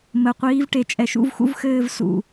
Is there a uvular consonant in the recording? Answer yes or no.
yes